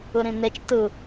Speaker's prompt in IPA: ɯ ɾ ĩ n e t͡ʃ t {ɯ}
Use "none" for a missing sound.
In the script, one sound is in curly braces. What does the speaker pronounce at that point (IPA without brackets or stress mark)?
ɯ